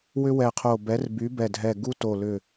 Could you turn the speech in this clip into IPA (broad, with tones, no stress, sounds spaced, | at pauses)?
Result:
w ʏ˥ w ɛ˧˩ qʰ o˧˩ b ɛ˨˥ r b y˨˥ b ɛ˧˩ dʱ ɛ˧˩ ɡ u˥ t o˧˩ l ʏ˧˩